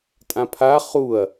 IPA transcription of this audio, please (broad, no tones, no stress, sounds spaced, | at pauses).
tʼ ã pʰ a χ u ɐ̯